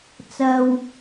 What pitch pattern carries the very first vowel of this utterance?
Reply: low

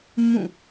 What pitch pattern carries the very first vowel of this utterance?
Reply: falling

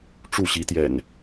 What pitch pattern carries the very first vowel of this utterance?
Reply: falling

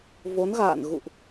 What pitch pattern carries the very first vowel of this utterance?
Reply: rising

